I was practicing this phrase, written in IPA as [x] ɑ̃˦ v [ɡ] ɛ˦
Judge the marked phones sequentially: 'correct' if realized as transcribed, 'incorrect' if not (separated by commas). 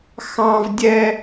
correct, incorrect